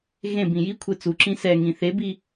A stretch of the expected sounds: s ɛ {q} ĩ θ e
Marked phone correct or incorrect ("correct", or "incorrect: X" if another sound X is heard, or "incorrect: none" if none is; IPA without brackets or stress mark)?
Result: incorrect: ŋ